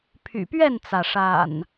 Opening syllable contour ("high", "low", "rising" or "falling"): low